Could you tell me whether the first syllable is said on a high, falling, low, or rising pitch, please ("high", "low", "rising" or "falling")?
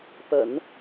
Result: low